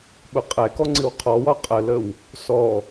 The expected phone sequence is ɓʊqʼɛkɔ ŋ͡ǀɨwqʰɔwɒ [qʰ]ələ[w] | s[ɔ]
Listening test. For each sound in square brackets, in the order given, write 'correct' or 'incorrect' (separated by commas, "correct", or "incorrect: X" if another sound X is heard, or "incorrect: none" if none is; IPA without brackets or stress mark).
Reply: incorrect: qʼ, correct, correct